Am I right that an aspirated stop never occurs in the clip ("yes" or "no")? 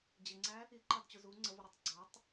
yes